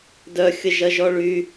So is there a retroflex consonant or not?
yes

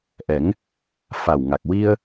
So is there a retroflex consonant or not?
no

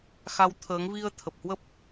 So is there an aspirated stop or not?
yes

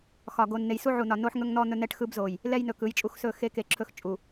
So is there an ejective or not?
yes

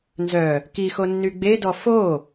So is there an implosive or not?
no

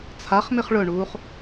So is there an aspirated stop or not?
yes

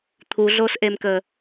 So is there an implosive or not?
no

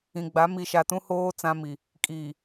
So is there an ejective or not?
yes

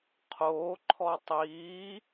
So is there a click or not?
yes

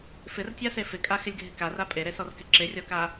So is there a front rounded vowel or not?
no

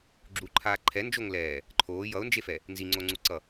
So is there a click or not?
yes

